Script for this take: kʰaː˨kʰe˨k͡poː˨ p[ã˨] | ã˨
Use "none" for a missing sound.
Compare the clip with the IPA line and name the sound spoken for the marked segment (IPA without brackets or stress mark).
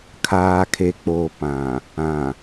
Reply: ã˨